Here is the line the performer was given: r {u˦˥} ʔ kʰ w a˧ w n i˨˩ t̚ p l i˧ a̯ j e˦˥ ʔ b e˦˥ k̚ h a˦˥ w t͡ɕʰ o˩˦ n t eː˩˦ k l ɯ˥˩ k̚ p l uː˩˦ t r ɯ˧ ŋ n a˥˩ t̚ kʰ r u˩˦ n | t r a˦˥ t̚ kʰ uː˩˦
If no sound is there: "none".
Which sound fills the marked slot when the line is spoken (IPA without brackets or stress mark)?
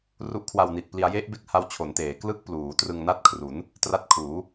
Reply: u˦˥